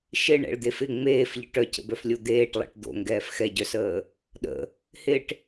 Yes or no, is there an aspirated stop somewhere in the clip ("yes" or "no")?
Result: no